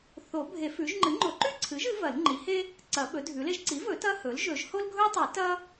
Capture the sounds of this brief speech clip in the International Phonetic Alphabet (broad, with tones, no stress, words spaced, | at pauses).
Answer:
θo˨˩˦bʱe˨˩˦ fʉ˩˥ʒ ŋ͡ǃɨ˩˥ŋ͡ǃo˨˩˦ǃʉ˥ǀʰɨ˩˥ʒ ɨ˩˥vɐ˨˩˦lŋ͡ǃi˩˥he˥ | ǀɐ˨˩˦ɓɵ˩˥dʱʉ˩˥le˥ʒ ǀi˩˥vɵ˨˩˦ tɐ˥hɵ˩˥l ʒɵ˨˩˦ʒho˥lɡʱɵ˥tˤɨ˨˩˦ tɐ˥